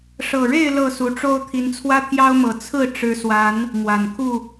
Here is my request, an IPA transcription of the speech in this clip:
ʂ ɤ˨˩ ɻ e˥˨ ɪ̯ l ɤ˥˨ s u˨˦ ʈ͡ʂ o˦ ʊ̯ t̪ʰ i˨˦ n t͡sʰ w ä˦ t̪ʰ j ɑ˦ ʊ̯ m ɤ˨˩ t͡sʰ ɹ̩˥˨ ʈ͡ʂ ɻ̩˨˦ s w a˨˦ n | m w a˨˩ n kʰ u˥˨

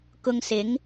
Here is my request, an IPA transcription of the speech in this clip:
k ʊ˧ ŋ s ɪ˨˥ ŋ

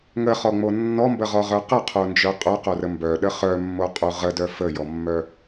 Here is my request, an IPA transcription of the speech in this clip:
ŋ ə χ ɔ ŋ͡m o nː ɔ m b ə ʁ ɔ ʁ œ q ə qʰ o n d͡ʒ œ qʼ œ q o r ə m b œ ɗ ə χ œ mː o qʼ u ʁ ə d œ f ə j ɔ mː œ

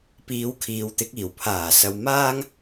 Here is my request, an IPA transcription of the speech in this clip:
p iː˨˧ w kʰ iː˨˧ w t̪ ɪ˨˥ k̚ iː˨˩ w pʰ aː˨˩ s ɐ˨ w m aː˥ ŋ

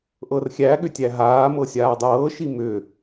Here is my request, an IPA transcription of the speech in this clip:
ʔ ɤ r xʲ æ ɠ ʏ tʲ æ ɦ aː m ɤ sʲ aː dˤ ɤː ʃ i m ʏ

